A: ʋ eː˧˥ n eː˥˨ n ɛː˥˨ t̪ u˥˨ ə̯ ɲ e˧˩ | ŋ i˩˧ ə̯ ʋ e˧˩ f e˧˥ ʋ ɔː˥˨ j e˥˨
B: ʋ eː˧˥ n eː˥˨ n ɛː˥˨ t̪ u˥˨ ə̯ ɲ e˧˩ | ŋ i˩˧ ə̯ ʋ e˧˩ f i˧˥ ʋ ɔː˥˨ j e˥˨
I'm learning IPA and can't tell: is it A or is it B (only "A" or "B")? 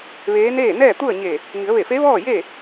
A